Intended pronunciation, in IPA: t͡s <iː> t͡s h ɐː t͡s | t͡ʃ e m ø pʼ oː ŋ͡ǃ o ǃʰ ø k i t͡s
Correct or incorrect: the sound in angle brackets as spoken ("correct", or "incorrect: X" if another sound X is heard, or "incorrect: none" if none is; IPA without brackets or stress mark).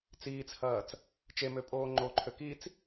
correct